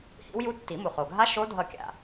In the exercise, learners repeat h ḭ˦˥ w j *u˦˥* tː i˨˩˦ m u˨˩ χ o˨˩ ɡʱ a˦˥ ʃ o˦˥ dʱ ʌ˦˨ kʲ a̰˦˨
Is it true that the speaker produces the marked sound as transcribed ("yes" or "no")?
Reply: yes